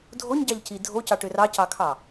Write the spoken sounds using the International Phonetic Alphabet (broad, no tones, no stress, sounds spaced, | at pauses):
dʱ o ɲ ɟ ɑ ʎ c i dʱ o c ɑ ʈ ʏ r ɑ c ɑ kʰ ɑ